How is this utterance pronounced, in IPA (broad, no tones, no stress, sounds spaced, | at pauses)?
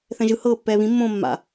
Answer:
θ ɛ̃ ʒ ɯ h ɤː pː ɛː β ĩ mː õː mː a̰